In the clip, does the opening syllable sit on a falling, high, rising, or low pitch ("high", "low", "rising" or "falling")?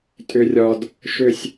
high